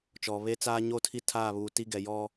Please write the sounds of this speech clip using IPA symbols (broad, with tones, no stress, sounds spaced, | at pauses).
t͡ʃ ɔ˨ β e˦ t͡s aː˦ ɲ o˦˨ tʰ i˦ tʰ aː˦˨ β uː˨ t i˦ ɡ ɛ˨ j ɔ˦